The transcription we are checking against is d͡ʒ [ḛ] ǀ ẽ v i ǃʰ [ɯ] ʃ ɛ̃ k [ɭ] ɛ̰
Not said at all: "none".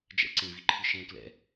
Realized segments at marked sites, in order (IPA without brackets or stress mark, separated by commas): ɛ̰, ɯ, l